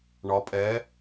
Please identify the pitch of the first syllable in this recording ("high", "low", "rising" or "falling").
rising